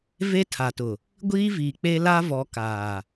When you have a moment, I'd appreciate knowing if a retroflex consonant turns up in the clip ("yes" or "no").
no